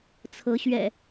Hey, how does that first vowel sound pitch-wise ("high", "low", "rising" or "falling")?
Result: rising